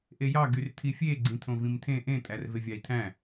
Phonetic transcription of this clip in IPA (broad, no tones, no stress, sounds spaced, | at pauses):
ʔ e j ɑ ɡ y r tʰ i fʲ e ɡ͡ǀ ĩ tʰ õ v ĩ m tʰ ẽ ʔ ẽ tʼ æ r v e vʲ ɑ i̯ tʰ æ̃